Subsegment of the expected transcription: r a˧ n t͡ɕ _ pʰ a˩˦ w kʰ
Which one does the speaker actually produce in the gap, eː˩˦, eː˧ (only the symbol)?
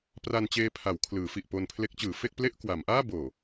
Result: eː˧